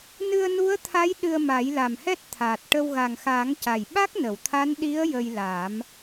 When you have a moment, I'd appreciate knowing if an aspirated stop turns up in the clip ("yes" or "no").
yes